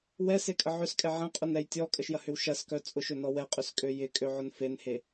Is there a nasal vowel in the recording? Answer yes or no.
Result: yes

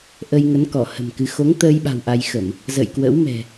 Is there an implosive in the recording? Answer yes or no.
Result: yes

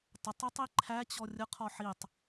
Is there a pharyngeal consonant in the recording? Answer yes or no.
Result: yes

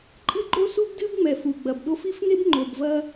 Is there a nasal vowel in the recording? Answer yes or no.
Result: no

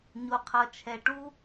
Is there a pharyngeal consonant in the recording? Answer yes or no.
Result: no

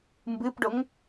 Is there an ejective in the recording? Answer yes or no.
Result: no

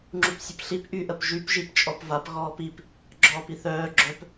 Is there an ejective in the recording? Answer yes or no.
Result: yes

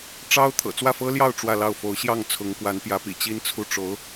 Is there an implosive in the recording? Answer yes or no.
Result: no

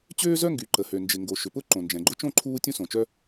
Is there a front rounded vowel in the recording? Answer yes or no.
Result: yes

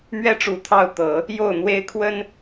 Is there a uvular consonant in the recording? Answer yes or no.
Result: no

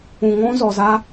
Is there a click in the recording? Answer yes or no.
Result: no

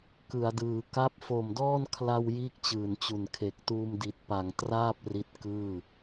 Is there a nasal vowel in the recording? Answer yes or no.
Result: no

